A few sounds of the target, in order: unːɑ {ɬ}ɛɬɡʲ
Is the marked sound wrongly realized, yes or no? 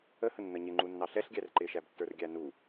no